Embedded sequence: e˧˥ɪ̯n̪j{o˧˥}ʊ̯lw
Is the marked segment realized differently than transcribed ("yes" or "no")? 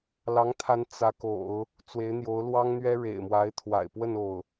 no